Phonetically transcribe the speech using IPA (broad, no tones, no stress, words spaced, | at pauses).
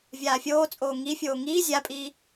vʲaːfʲoːt͡sʼoː ŋifʲoː ŋiː zʲapʼiː